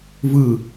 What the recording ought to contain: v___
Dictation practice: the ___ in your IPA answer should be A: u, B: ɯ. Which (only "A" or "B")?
B